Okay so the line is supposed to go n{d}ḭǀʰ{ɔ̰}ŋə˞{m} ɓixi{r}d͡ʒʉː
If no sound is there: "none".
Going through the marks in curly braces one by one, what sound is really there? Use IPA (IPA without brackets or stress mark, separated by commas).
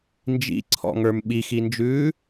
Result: d͡ʒ, ɔ̰, m, n